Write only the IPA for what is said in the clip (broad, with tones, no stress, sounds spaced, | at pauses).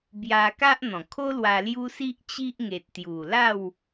b j a˧ k a˦ ʔ n̪ ɔ̃˨˩ kʰ o˦ l w a˧ l j u˦ s i˦ ʔ t͡ɕ i˦ ʔ ŋ e˨ t̚ t̪ j u˨˩ l a˥˧ w